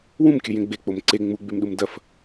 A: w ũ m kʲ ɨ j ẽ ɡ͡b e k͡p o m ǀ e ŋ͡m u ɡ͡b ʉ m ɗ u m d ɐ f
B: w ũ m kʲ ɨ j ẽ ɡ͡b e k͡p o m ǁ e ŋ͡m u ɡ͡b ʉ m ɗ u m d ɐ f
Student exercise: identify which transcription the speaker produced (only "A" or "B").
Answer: A